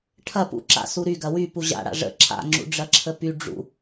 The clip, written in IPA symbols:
ʈʰ ɐ p ṵ ǁ a̰ s u ɾ y ɡ ɐ w y p u ʑ a̰ ɽ a̰ ʐ ə̰ ǁʰ a̰ ŋ͡ǁ ṵ ɖ͡ʐ ɐ ǁʰ ə p y ɖ͡ʐ ṵ

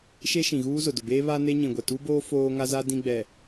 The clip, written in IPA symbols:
ʃ e˦ ʃ ĩ˨ ɣ uː˦ z ʊ˨ d ʊ˨ b eː˦ β a˦ n e˦ ɲ ĩ˨ ɡʷ ɛ˨ t u˦ b oː˦ f oː˦ ŋ a˦ z a˦ d ĩ˦ ɡ͡b ɛ˨

